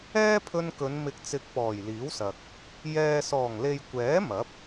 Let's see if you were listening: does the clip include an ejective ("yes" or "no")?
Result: no